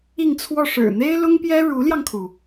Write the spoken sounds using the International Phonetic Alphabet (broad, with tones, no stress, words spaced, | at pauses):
i˥˧ŋt͡sʰwɔ˥˩ ʂɻ̩˨˩n̪e˥ɪ̯lʊ˥ŋpjɛ˥ ɻu˧˥ljɑ˧ŋkʰu˩